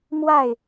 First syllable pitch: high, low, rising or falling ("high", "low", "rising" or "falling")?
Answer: falling